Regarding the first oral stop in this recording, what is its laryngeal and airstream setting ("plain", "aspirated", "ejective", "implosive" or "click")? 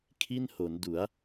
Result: aspirated